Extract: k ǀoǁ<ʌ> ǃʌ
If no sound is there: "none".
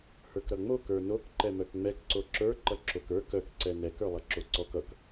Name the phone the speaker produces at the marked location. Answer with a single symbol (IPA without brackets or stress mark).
ə˞